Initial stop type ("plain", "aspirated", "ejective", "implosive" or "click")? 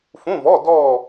plain